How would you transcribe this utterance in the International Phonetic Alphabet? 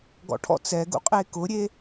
ɡɔ̰ʈʰɔ̰ t͡sɛɡṵqʼe kʊɾʲe

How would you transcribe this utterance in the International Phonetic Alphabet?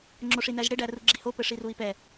ŋ͡ǁoʂinæʒɽe ɖæruɡ͡ǁiho pɘʂirui̯pɛ

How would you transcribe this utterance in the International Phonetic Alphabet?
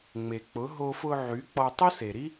ŋ͡me˨k͡pʊ˨˦ ɦo˧fʊ˧ ʕy˨˦k͡pɔ˧ tˤʊ˦se˨ɾi˦

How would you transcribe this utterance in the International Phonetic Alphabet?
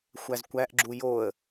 xʷæzkʷæʔɡ͡ǁu joə̯

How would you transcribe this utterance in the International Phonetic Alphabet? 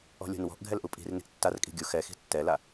ɔ̤lʲo̤nwɔ̤ʔ ɡʱɛlʔupʼi̤rni̤ʔ tːarkʼi̤ ɡʲu xɛxi̤ tːɛla

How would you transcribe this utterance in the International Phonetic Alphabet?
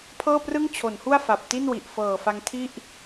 pʰɤː˥˩prɯ˥˩ŋ t͡ɕʰo˩˦nhu˥˩a̯ fa˨˩p̚ti˥˩nwi˨˩ʔ fɤː˨˩fa˧ŋtʰi˥˩ʔ

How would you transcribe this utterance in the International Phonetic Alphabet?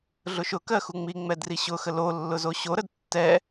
ɮʊʃʊkɜ xuŋ͡miŋ͡mɛd riɕʊxə lo lːʊzoɕoɾəd tːɛ

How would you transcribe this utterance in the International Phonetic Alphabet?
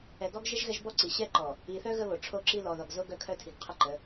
ɛ˨ɡɔ˦ɡʒə˦ʒ ɣɛ˦ʒbɔ˦ǀi˨ ɕɛ˦ǃɔ˨ | i˨θœ˦ ɣə˦βo˨ʈ͡ʂʰo˦ǁi˦ lɔ˨ðɔ˨ɡ zo˦ ɡœ˦kʰœ˦tʰi˨ɡqʰə˦ ǃə˨˦

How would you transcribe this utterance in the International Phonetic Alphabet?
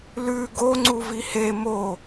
lʉ ɡo ŋ͡ǀuvihe mo

